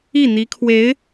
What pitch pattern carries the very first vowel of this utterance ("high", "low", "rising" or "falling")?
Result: falling